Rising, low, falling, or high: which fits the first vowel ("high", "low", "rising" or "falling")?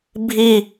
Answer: falling